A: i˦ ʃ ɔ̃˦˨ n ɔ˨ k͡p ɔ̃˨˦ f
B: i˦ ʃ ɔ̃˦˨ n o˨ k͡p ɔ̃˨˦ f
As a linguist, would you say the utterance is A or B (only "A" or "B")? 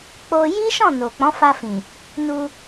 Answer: B